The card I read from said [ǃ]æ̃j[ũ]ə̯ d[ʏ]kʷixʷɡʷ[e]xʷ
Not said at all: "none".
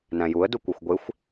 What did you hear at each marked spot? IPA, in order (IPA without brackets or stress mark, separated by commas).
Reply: n, u, u, e